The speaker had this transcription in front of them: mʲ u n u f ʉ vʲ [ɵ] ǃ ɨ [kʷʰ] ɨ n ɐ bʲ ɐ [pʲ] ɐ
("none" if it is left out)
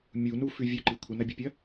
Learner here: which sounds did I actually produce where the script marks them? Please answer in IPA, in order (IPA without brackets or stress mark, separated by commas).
ɵ, kʷʰ, pʲ